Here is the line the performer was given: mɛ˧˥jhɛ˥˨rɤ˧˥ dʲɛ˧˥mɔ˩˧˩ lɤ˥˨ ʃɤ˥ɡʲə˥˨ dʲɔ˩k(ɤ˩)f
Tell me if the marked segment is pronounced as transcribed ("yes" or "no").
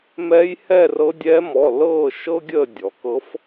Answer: no